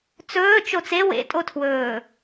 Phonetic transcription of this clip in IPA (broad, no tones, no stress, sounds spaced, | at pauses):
t͡s ɵː t͡ʃ o t͡s e w ḛ tʼ o tʰ w ɵː